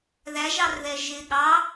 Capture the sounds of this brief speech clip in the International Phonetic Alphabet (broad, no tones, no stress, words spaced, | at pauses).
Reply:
ðæʒɑrðɛ ʒɪ ɠɑ